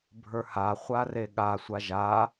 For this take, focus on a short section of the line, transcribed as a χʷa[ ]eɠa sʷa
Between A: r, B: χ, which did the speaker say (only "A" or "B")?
A